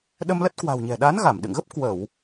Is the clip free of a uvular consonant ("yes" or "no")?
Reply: yes